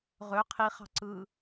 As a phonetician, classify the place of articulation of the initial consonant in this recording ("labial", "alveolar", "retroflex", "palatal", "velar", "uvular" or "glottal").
uvular